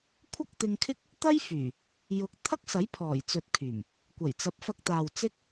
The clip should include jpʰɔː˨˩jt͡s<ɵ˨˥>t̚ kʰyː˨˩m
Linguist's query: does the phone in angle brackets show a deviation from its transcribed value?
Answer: yes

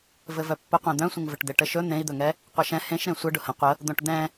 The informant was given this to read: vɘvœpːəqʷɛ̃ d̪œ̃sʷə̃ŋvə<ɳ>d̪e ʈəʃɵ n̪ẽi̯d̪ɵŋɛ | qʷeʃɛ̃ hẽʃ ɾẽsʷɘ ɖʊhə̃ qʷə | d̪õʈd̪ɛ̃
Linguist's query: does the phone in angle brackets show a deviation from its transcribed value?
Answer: yes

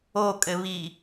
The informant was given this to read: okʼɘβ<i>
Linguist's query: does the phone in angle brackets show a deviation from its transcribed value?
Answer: no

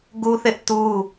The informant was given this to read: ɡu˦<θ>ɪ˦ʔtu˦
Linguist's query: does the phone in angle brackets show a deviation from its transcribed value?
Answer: no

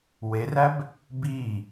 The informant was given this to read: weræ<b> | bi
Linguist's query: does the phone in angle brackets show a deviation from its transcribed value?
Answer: no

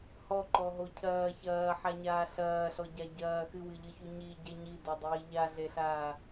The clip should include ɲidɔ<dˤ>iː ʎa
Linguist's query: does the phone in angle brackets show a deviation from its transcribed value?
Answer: no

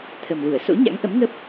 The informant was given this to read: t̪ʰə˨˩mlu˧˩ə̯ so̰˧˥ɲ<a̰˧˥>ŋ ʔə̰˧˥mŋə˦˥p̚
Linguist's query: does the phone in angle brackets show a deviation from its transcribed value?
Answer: no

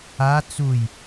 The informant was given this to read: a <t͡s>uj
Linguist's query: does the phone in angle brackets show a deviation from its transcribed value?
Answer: no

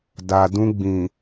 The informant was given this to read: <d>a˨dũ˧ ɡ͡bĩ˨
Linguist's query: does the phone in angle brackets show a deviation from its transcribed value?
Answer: no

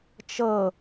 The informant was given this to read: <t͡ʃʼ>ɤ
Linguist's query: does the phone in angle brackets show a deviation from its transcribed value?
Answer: yes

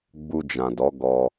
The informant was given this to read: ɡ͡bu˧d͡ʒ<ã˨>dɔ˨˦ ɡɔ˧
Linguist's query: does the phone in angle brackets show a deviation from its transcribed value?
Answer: no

